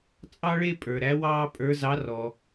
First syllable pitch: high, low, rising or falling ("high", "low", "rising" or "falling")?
high